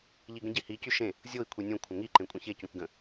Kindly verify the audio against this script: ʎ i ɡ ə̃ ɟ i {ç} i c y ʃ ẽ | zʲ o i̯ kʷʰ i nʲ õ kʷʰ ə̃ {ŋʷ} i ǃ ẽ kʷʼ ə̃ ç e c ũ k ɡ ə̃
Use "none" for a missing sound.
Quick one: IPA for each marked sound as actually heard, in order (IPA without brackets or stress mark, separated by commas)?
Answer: h, ŋ